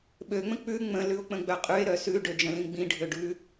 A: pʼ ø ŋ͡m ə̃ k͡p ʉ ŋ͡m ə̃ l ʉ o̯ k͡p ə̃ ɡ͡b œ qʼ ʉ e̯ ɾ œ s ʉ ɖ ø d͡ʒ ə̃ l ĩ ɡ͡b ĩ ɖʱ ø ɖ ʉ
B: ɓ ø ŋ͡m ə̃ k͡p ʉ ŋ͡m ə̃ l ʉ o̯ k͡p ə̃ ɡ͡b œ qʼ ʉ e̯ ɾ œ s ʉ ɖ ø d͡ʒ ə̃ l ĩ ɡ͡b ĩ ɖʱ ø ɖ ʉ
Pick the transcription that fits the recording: B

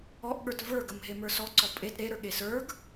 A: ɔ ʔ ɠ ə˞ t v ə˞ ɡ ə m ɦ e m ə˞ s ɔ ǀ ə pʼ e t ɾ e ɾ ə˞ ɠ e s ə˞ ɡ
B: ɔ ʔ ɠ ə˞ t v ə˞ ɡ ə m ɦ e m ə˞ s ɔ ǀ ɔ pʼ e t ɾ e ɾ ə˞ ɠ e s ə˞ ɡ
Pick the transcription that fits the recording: B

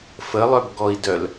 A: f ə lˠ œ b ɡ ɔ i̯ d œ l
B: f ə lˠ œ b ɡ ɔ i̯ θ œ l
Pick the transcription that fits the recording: A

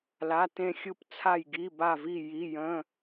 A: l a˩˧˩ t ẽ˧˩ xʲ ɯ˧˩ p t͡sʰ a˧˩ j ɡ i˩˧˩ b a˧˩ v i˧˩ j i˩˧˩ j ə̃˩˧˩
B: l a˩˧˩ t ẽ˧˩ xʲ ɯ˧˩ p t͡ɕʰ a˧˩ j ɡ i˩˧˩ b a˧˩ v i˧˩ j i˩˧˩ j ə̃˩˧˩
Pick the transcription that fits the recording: A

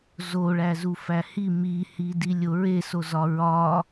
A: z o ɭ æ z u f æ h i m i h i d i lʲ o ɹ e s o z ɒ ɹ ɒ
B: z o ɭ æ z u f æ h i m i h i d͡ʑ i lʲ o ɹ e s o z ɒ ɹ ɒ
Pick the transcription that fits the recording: A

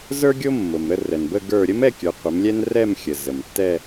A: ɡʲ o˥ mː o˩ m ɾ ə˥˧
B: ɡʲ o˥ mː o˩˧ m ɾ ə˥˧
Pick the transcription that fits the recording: A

